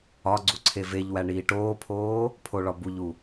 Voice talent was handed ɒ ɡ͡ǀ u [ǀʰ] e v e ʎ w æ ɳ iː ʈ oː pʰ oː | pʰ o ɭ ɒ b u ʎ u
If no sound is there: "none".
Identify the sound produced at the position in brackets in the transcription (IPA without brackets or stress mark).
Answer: ǀʰ